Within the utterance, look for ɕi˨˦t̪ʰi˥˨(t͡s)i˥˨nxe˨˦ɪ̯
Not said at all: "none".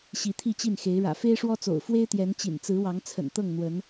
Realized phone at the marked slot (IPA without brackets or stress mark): t͡ɕ